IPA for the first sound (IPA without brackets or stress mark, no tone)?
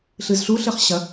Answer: ɬ